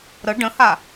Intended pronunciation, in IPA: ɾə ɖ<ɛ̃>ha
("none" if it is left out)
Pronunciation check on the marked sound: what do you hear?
ə̃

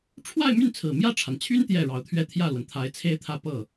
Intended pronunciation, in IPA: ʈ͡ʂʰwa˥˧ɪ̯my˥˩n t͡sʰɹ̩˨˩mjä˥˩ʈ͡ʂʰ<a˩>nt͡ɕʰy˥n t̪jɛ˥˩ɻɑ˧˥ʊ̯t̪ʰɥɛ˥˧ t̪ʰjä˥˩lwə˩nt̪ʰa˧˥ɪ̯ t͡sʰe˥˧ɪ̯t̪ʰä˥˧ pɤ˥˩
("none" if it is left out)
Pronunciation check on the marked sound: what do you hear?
a˩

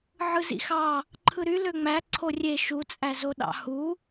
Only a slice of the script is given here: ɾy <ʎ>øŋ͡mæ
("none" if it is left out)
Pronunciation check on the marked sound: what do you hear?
l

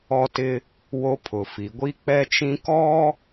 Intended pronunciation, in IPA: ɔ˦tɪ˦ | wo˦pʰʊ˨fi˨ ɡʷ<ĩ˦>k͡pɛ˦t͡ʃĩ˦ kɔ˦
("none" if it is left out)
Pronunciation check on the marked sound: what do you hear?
i˦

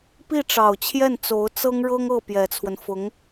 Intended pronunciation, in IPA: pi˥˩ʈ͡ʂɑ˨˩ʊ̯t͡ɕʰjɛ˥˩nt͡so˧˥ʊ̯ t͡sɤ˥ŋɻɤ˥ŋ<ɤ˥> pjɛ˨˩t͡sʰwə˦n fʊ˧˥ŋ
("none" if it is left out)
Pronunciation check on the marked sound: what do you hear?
ɤ˥˩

